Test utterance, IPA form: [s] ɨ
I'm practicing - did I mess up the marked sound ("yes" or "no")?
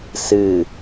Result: no